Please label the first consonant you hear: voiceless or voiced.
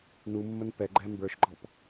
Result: voiced